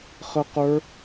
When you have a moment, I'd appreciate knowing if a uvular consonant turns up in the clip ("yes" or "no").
yes